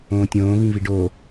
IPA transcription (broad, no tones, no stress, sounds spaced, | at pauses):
õː tʲ õː v ĩ v i ɖ oː